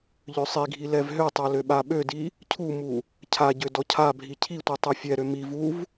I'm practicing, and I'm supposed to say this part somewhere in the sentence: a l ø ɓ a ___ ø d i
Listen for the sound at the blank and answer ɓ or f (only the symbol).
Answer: ɓ